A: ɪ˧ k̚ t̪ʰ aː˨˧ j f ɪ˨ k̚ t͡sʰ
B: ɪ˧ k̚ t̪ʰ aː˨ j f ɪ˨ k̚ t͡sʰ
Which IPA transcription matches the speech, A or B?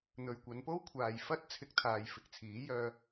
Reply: B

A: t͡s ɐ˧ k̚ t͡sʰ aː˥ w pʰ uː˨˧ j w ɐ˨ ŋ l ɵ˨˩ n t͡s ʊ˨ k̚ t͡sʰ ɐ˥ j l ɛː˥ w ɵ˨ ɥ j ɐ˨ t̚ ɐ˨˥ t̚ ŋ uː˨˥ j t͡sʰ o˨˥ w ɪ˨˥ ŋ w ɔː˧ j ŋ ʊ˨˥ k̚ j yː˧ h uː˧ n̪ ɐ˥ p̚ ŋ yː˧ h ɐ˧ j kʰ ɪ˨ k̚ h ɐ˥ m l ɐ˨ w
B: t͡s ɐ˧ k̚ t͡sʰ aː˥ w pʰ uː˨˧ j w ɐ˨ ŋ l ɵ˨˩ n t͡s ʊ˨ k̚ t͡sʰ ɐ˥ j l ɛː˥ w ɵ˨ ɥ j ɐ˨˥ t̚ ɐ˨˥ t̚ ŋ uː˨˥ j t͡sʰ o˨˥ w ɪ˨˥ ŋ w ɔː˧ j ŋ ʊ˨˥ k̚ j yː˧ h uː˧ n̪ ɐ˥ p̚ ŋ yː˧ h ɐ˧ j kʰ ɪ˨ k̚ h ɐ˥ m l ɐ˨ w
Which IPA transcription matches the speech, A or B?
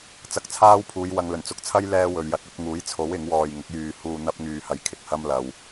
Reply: B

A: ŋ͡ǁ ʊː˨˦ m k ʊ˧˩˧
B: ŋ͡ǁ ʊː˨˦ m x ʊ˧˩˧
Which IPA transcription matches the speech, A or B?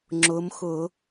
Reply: B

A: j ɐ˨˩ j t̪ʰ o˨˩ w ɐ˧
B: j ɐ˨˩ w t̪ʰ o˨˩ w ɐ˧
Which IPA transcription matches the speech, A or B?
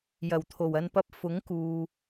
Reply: B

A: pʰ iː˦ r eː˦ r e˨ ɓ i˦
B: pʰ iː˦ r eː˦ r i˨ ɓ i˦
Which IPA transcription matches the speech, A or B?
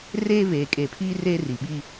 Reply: B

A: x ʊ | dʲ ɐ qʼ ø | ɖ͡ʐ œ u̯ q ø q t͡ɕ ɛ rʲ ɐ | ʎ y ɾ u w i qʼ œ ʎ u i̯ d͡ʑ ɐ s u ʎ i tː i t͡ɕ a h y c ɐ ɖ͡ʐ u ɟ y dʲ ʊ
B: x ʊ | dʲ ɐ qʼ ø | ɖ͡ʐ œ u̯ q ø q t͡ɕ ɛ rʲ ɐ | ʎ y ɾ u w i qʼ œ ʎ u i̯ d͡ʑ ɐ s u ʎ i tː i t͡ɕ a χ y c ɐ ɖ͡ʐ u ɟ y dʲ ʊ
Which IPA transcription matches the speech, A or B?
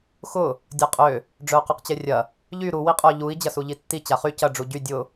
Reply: B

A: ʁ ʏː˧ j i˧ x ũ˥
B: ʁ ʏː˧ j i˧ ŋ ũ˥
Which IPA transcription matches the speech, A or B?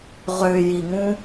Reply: B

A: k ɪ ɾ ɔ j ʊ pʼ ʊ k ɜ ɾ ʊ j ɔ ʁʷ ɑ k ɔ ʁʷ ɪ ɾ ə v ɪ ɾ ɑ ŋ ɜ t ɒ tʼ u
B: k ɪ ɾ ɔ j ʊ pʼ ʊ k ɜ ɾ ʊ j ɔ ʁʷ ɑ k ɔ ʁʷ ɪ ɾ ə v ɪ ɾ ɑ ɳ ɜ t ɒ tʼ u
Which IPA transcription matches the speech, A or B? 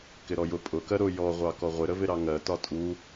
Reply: A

